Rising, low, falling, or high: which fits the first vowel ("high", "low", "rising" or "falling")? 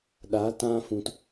rising